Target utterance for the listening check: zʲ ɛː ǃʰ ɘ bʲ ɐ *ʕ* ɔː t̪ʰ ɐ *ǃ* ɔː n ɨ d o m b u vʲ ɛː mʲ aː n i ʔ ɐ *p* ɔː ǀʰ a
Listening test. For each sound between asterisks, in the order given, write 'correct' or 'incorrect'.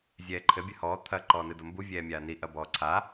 incorrect, correct, incorrect

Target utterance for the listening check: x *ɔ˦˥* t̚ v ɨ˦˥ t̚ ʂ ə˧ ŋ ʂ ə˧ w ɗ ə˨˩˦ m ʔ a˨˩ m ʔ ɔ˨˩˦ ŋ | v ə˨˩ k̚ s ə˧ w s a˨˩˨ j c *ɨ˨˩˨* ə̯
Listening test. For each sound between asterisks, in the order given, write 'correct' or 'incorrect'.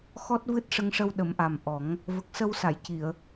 correct, incorrect

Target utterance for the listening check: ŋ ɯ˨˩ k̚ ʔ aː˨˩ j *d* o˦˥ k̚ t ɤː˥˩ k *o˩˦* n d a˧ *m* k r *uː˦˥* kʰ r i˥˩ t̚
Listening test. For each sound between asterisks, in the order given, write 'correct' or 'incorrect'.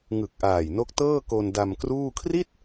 incorrect, incorrect, correct, incorrect

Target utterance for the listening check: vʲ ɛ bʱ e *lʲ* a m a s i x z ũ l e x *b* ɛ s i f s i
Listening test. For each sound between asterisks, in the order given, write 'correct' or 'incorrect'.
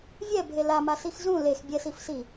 incorrect, incorrect

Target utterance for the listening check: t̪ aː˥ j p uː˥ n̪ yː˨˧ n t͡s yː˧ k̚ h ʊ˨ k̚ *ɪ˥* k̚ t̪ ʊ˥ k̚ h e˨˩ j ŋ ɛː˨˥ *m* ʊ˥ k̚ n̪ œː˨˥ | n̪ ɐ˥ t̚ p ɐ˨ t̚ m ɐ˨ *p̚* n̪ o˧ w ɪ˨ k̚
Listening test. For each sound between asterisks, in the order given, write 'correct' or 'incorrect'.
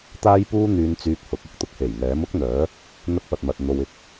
correct, correct, incorrect

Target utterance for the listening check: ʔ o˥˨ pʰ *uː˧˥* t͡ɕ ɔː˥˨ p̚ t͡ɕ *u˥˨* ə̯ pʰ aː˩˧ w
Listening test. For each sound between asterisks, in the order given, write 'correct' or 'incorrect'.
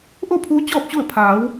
correct, correct

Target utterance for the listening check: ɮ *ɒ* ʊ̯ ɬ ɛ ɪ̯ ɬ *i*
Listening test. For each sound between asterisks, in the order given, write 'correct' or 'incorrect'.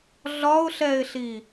correct, correct

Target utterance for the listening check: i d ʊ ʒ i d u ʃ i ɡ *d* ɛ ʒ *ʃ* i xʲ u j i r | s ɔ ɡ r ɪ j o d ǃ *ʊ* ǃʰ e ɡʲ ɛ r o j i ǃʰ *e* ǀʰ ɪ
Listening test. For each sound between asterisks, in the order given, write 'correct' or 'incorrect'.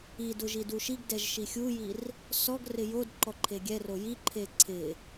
correct, correct, incorrect, correct

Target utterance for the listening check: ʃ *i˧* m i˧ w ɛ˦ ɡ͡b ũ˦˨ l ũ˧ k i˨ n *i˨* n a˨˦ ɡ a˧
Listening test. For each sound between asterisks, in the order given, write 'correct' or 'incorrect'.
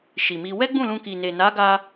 incorrect, incorrect

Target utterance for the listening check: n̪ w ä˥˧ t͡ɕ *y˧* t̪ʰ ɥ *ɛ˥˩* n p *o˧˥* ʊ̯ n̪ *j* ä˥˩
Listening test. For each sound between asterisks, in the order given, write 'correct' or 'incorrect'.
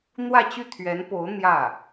incorrect, incorrect, correct, correct

